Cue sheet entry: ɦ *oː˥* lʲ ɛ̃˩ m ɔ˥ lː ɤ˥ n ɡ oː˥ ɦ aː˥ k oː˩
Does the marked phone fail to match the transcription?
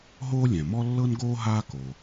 no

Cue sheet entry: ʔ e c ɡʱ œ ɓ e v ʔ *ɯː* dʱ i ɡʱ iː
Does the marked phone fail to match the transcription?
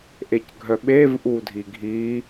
yes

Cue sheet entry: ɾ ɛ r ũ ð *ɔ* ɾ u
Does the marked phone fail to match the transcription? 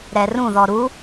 no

